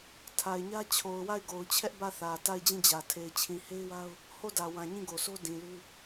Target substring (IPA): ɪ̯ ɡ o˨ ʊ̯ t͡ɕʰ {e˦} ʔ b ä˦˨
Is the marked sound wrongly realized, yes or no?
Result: yes